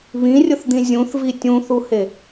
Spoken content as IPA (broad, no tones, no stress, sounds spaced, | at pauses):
β ĩ rʲ ʊ θ d̪ ĩ zʲ ũ θ v i tʲ ũ θ u h e